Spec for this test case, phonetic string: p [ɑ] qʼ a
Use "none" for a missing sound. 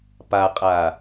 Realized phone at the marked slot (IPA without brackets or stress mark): a